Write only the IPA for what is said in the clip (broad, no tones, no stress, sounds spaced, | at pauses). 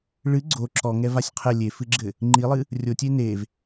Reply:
ɭ ɨ ɡ͡ǀ o ǁ ɔ ŋ ɛ v a sʲ qʰ ɛ lʲ e f ɨ ɡ͡ǁ ɘ | ŋ͡ǃ i lˠ ɨ | rʲ o tʲ e n e v